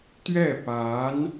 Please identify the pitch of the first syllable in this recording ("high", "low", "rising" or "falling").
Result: falling